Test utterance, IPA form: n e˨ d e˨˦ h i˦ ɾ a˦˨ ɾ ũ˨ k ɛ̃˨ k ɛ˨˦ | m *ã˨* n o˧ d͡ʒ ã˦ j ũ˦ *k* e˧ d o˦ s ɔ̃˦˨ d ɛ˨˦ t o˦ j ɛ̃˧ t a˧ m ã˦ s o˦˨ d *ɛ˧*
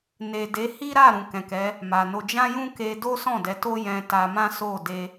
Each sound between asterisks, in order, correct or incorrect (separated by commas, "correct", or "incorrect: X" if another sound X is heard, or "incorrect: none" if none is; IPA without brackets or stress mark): incorrect: a˨, correct, incorrect: e˧